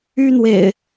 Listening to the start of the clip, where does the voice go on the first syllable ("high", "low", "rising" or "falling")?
high